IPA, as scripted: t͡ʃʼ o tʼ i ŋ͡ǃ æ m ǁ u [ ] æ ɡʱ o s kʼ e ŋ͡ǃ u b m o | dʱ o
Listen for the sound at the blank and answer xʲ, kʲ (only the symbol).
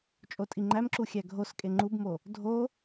xʲ